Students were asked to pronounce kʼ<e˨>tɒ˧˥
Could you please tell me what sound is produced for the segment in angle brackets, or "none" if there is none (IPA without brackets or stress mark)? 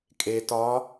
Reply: e˨